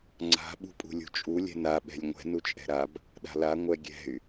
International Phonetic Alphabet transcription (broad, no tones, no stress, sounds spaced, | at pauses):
ŋ͡ǀ a̤ ɓ ṳ pʼ ṳ lʲ ṳ t͡ʃʼ u lʲ ɛ̤ n a ɓ ɛ̤ lʲ ŋʷ ɛ̤ n u t͡ʃʼ ɛ̤ ɾ a b | ɗ a̤ l a ŋʷ ɛ ɡʲ ɛ̤ y̯